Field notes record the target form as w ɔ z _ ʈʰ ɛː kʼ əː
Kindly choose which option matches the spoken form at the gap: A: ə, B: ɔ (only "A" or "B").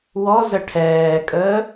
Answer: A